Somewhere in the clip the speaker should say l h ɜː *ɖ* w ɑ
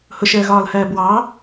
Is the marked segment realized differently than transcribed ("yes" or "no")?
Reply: yes